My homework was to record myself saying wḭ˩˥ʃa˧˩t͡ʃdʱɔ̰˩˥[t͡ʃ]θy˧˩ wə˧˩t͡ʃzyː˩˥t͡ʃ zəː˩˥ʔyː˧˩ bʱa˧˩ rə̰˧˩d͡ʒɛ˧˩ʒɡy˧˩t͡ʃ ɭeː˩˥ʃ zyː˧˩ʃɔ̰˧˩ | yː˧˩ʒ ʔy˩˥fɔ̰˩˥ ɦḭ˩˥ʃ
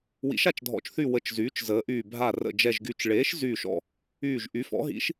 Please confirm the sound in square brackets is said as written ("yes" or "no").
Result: yes